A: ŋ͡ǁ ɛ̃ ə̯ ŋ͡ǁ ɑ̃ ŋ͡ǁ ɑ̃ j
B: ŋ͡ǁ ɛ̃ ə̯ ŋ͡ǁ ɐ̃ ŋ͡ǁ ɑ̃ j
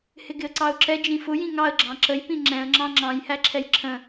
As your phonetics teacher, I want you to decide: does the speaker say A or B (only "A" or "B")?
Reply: A